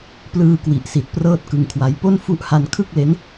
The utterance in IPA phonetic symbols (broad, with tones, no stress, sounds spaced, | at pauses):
p l ɯː˧ k w i˨˩ ʔ s i˨˩ t̚ p r ɤː˥˩ t̚ k ɯ˧ ŋ kʰ w a˦˥ j p o˥˩ n f u˦˥ ʔ h a˧ n kʰ ɯ˥˩ k̚ l e˦˥ n